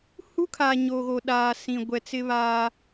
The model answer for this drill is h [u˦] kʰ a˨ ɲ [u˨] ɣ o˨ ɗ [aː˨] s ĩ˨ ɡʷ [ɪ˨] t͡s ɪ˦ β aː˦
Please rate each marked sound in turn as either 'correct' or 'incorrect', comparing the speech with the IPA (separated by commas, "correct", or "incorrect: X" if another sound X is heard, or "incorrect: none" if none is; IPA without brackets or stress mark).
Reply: correct, incorrect: o˨, correct, incorrect: ɛ˨